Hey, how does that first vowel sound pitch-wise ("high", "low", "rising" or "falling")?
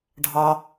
high